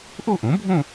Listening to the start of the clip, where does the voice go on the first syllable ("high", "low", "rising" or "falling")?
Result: falling